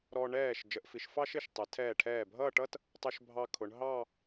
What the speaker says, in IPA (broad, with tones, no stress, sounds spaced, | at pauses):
ɾ ɔ˧ ɳ ɛː˧˩ ʃ d͡ʒ ə˩˧ ʔ f i˩˧ ʃ f ɑ˥ ʃ ɪ˧˩ ʃ tˤ ɛ˩˧ tʰ ɛː˧˩ ʈʰ ɛː˧˩ bʱ ʌː˥˧ ʈ ʌ˥ t | tˤ ʊ˧ ʃ bʱ ɑ˧ kʰ ʊ˩˧ ɳ ɦ ɑ˥˧